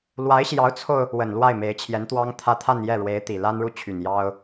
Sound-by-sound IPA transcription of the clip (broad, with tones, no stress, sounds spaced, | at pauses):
l w a˧˥ ɪ̯ ɕ j ɑ˧˥ ʊ̯ t͡sʰ o˧ ʊ̯ | w ə˨˩ n l w a˥˩ ɪ̯ m e˧˥ ɪ̯ t͡ɕʰ j ɛ˧˥ n t̪ w ɑ˥ ŋ t̪ʰ ä˥˧ t̪ʰ a˥˧ n j ɛ˥˩ ɻ w e˧˥ ɪ̯ t̪ i˨˩ l a˥ n ɻ u˥˩ t͡ɕʰ y˨˩ n j ɑ˥ ʊ̯